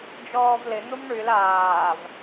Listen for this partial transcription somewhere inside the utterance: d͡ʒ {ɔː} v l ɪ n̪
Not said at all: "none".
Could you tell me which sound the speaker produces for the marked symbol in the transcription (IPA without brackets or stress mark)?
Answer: ɔː